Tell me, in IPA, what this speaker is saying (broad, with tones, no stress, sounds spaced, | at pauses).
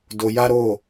d o˧ j a˦ ɾ o˦˨